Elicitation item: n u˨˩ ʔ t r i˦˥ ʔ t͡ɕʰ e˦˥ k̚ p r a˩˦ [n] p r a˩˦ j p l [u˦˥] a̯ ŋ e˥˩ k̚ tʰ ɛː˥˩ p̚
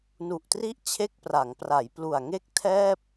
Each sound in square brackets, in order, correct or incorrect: incorrect, incorrect

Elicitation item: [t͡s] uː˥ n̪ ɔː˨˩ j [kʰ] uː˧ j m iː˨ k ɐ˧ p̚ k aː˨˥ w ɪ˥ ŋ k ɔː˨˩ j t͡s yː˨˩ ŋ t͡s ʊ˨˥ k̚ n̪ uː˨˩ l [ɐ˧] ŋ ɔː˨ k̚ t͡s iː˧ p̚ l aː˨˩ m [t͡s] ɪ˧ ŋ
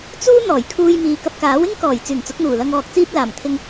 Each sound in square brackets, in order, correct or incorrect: correct, correct, correct, incorrect

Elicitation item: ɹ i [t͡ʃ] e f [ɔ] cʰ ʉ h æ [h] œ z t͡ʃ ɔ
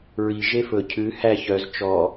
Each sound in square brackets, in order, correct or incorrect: incorrect, incorrect, incorrect

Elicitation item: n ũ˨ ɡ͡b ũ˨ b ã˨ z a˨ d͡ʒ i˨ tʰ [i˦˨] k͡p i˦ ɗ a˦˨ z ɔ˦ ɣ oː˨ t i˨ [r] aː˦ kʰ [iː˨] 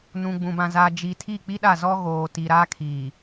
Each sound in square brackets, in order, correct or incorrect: correct, incorrect, correct

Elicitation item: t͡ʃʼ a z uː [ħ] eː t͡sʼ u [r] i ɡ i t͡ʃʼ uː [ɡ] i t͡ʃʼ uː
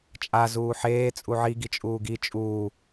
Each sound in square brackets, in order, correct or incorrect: correct, incorrect, correct

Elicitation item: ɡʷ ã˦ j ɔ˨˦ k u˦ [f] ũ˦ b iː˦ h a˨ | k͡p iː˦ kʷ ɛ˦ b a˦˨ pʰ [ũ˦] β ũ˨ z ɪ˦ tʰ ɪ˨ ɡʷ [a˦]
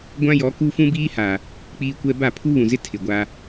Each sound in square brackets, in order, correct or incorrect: correct, incorrect, correct

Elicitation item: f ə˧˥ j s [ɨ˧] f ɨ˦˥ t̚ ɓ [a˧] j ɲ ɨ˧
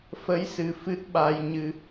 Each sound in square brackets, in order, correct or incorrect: incorrect, correct

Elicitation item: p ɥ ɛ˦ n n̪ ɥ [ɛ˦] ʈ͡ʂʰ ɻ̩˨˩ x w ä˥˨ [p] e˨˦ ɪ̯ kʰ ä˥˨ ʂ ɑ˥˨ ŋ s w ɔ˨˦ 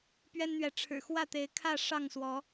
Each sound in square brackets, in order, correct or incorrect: incorrect, incorrect

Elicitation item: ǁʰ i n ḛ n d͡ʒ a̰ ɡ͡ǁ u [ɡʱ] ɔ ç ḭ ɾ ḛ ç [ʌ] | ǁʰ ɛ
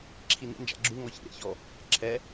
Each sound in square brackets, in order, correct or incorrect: incorrect, incorrect

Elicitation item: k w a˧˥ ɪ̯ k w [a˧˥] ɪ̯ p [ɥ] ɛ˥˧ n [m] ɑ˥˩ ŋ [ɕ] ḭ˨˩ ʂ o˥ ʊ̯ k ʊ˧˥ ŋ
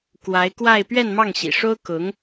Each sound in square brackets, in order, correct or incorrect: incorrect, correct, correct, correct

